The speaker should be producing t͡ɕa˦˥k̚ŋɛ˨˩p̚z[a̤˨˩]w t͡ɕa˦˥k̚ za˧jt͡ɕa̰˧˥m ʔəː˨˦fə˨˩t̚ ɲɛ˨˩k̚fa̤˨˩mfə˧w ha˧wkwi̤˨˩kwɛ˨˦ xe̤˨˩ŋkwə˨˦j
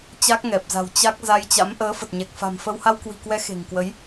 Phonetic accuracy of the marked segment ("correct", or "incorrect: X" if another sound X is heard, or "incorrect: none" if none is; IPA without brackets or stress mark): correct